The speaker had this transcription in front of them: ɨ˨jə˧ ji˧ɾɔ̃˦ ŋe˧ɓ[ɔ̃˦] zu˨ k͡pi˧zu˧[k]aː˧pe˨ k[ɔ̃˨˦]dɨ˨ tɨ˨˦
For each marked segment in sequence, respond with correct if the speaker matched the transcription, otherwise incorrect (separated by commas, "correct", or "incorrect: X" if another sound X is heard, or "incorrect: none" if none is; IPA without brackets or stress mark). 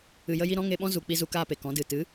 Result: correct, correct, correct